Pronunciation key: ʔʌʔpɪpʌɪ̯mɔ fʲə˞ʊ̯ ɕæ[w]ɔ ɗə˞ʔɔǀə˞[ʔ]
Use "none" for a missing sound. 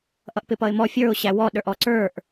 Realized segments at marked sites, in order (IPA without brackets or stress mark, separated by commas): w, ʔ